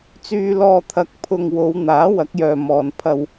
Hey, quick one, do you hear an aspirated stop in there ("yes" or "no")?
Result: yes